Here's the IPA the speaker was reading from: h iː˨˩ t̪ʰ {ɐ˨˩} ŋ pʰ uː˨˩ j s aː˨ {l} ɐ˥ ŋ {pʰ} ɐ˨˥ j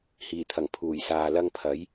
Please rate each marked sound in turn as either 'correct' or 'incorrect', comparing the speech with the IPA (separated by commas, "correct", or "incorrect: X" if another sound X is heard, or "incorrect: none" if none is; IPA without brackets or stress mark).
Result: correct, correct, correct